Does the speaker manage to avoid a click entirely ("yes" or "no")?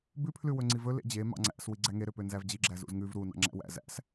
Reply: no